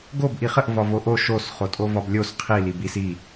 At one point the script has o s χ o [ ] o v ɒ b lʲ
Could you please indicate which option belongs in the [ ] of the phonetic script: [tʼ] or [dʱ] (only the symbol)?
tʼ